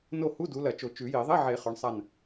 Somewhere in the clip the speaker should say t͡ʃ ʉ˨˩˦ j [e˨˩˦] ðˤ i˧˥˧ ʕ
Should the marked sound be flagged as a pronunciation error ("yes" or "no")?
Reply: yes